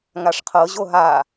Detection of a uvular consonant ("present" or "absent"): present